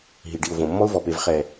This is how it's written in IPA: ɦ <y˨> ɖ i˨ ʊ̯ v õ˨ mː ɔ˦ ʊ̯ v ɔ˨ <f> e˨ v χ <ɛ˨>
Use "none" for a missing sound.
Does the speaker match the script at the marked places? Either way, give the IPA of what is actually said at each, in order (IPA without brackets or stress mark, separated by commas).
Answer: i˨, p, ɛ˨